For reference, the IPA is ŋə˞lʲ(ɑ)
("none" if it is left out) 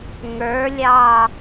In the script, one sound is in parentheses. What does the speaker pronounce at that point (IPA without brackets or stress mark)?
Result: ɑ